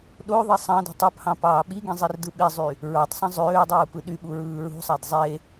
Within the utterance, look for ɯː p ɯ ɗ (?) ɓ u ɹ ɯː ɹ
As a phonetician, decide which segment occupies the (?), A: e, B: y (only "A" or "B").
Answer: B